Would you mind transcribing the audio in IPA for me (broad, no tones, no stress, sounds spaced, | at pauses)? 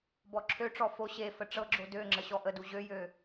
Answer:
b ɔ ǁʰ ø ʈ͡ʂ ɔ f o ɕ e f ə ʈ͡ʂ ɤ ɡ͡ǁ o d ø ŋ͡ǁ ə ɕ ɔ ʔ ə d u ʑ ø j ø